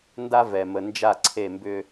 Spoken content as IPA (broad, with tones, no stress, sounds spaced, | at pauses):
n d a˦ v ɛ˨ m ə˨ n d͡ʒ a˦˨ ǀʰ e˦˨ m b ʏ˦